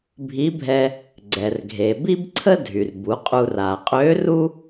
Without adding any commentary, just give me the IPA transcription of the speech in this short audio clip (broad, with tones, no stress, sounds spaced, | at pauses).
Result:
bʱ i˧˥ bʱ ɛ˧ | ɡ͡ǀ ɛ˩ r ɡʱ e˩ b i˥ b ǀʰ ə˥ dʱ y˩ r b u˩˧ qʼ u˧ r a˩ qʼ ø˧˥ r u˥